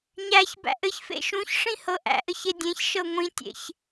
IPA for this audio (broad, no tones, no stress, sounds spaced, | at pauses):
ɲ æ ç b æ̰ ʔ ɘ ç f ḛ ʃ ũ ç ʂ ĩ h ɤ ʔ æ̰ ʔ ɘ ç e dʲ ẽ ç ʃ ɤ ŋʷ ĩ tʲ ḛ ç